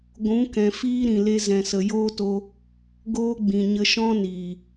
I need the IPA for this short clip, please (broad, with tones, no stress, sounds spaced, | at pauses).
ɡʷ ũ˨˦ k ɛ̃˨ f iː˧ ɾ ĩ˨ l e˧ z ɛ̃˨ s ə˨ j oː˦ t o˧ | ɡ oː˦ ɡ͡b ĩ˨ ɲ ə˧ ʃ ɔ̃˦ n iː˨